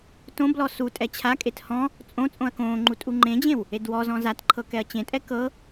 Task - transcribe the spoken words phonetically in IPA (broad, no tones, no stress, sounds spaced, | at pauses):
t õ b l ɔ s u tʼ ɛ t͡ɕʰ a kʼ e t h ɔ̃ | t͡sʼ õ t͡sʼ õ ɐ̯ k õː ŋ͡ǃ u tʼ u ŋ͡ǃ ẽ d͡ʑ ẽ w | e d w ɔ z ɔ̃ z a t ǃʰ ɤ k ɛ ɐ̯ t͡ɕ ẽ tʼ ɛ k ɤ